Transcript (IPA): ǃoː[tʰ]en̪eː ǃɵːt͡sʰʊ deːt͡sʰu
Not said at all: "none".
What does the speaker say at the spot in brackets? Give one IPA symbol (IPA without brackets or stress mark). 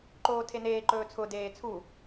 tʰ